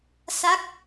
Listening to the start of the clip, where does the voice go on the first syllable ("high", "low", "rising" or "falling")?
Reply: falling